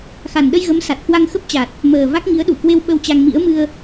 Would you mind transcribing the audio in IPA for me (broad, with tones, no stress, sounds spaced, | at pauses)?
x a˨˩ n ɗ ə˧ j ɣ ə˨˦ m s a˨˩ t̚ k w a˧ ŋ x ə˦˥ p̚ t͡ɕ a˨˩ t̚ | m əː˨˩ v a˦˥ k̚ ŋ i˨˦ ə̯ ɗ u˧˩ k w e˧ w ɓ ə˧ w t͡ɕ a˧ ŋ m ḭ˧˥ ə̯ m ɨ˧ ə̯